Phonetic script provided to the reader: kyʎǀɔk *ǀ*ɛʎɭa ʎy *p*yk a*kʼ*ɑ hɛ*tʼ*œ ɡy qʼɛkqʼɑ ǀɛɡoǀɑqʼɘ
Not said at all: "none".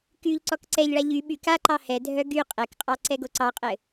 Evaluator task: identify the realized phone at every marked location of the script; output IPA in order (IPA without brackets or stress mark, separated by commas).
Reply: ǀ, ɓ, ǃ, dʱ